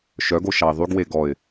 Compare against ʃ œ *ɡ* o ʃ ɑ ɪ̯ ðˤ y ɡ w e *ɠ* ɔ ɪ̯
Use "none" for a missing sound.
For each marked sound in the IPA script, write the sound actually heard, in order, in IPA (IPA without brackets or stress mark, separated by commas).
ɡ, ɡ